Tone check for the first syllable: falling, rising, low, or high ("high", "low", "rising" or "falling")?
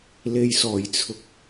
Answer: low